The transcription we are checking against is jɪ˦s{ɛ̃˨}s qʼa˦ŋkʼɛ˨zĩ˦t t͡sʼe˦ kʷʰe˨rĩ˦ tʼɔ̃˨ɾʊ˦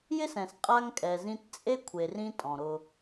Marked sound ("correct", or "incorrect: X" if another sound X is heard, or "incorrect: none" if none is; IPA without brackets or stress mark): correct